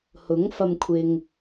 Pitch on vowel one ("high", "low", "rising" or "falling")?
rising